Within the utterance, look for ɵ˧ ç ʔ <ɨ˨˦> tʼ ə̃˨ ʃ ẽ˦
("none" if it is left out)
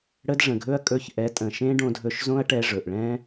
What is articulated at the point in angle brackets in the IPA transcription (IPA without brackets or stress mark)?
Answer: ɛ˨˦